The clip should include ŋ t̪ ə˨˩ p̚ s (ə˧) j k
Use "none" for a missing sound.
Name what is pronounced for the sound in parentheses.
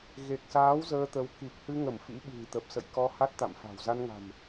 ə̰˧˨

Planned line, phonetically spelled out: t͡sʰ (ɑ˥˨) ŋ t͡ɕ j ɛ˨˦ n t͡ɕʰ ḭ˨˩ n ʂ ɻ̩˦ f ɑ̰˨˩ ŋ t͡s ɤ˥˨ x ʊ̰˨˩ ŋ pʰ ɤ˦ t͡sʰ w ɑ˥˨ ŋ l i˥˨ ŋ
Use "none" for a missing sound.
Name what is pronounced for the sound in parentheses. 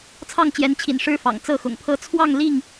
ɑ˥˨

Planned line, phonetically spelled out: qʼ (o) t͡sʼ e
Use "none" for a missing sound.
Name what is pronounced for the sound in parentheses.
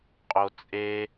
o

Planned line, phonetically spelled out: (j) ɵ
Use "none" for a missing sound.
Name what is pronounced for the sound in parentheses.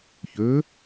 ç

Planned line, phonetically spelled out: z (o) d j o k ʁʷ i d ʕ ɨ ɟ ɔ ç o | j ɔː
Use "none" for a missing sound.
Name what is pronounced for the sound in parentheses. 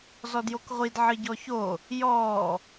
ɔ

